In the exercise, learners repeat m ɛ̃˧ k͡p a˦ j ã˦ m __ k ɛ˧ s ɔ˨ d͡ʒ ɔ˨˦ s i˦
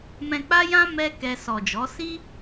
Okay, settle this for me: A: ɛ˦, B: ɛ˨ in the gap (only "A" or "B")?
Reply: A